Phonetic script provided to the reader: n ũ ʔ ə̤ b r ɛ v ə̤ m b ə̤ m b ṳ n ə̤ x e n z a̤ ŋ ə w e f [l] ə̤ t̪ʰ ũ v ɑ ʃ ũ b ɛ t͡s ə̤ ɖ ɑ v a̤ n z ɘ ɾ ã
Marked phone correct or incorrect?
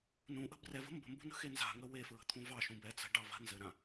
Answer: incorrect